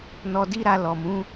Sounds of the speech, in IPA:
n ɔ˧ d i˦ ɾ a˧ l ɔ˨ m ũ˨˦

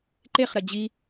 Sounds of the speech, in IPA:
ǃ e χ ɾ ɐ d͡ʑ i

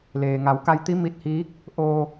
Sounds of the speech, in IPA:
l eː˩ ŋ a˩˧ w k a˧ j t̪ i˧˥ m i˧ t̚ h iː˧˥ k̚ | ʔ o˧

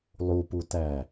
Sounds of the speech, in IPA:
lˠ u p u t æ

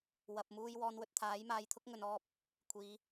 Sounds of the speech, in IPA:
w ɐ˨ p̚ m uː˧ j w ɔː˨˧ n w ɵ˨ t̚ t̪ʰ aː˨˥ j m aː˧ j t̪ʰ ʊ˥ k̚ ŋ ɵ˨ n ɔː˧ p̚ | kʷʰ iː˨˧

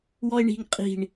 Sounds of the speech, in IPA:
w ɔ e̯ ɳ i̤ ŋ qʼ i̤ ɳ

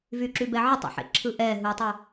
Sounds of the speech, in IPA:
v y ǁ y b ɛ ʕ ɯ tˤ ḭ ħ ḛ ǁʰ ɯ ʔ ɛː ɦ ɯ tˤ u

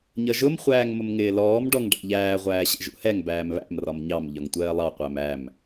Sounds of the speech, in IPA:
ɲ ʌ ʒ ʊ m χʷ æː ŋ m ʊ m ŋ ɪː l ɔː m ɖ ɔ ŋ ɖ æ̰ ʎ æː ʁʷ æː ɕ ɛ̰ ʒ ṵ h ɛ ŋ b æː m β æ̰ m r ɒ m ɲ ɑ m ʎ ɒ ŋ tʷ ɜː lˠ ɑ qʷ æ m æ m

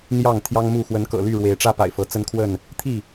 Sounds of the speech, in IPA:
n̪ j ɑ˥˨ ŋ t̪ʰ j ɑ˦ ŋ m u˥˨ x w ə˨˦ n k ɤ̰˨˩ l y˥˨ ɻ w e˨˦ ɪ̯ ʈ͡ʂ ä˦ p a̰˨˩ ɪ̯ f ɤ˨˦ t͡s ə˦ n kʰ w ə˥˨ n | t̪ʰ i˥˨

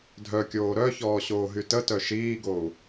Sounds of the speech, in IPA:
dʱ œ kʲ oː ɾ œ ç ɔː ɕ oː ɦ y t ə t œ ʃ iː ɡ o u̯

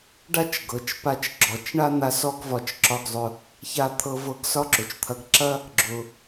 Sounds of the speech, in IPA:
ɖ a˥ t͡ʃ ɡ ɤ˩ t͡ʃ p a˧ t͡ʃ ɡ͡ǁ ɔ˩ t͡ʃ ɳ a˥ n̪ a˧ s ɔ˥ ɡ v ɒ˧ t͡ʃ ǁ ɒ˧ ɡ zˤ ʊ˧ | ç a˧ t̪ʰ ɤ˧ v ɤ˧ ɡ s ɒ˥ ǁ ʊ˩ t͡ʃ t̪ʰ ɐ˧ ɡ ǁ ɐ˥ | ɡ͡ǁ ʊ˩

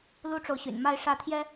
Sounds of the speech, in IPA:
l u˥ ʈ͡ʂ o˨ ʊ̯ ɕ y̰˨˩ n m a˥˧ ɪ̯ ʂ ä˥˩ t̪ʰ j ɛ˥

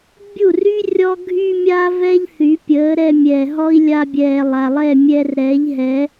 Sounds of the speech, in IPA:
bʲ u˥˩ r y˥ rʲ ɔ˥ ɡʱ y˥ mʲ a˥ v ɛ˥ ʎ θ y˩˥ pʲ əː˩˥ ɾ ɛ˧ mʲ ɛː˩ ɦ ɔ˥ i̯ lʲ a˧ bʲ ɛː˩ lˠ a˩ lˠ ɛ˥˩ mʲ ɛ˧ r ɾ ɛː˩˥ ʎ ɦ ɛ˩˥

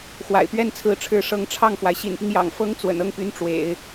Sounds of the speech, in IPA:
x w a̰˨˩ ɪ̯ p ɥ ɛ˥ n t͡sʰ ɹ̩˧˥ ʈ͡ʂʰ ɻ̩˧˥ ʂ ɤ˧˥ ŋ ʈ͡ʂʰ ɑ˥˩ ŋ f w a˩ ɪ̯ ɕ ḭ˨˩ n p i˦ ŋ j ɑ̰˨˩ ŋ f ɤ˥ ŋ t͡s w ə̰˨˩ n ɤ˥˩ ŋ p y˧˥ n ʈ͡ʂ w ḛ˨˩˦ ɪ̯

